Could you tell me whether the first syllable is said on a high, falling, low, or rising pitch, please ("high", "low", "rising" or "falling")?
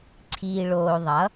low